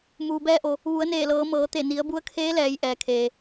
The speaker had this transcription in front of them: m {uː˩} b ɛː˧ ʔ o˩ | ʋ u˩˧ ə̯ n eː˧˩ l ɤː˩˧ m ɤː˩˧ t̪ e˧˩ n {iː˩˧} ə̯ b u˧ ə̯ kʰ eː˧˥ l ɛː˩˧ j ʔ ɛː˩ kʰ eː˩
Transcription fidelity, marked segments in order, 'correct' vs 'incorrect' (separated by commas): correct, incorrect